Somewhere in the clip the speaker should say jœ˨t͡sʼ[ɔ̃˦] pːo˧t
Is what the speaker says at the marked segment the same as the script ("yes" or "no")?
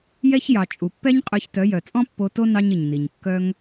yes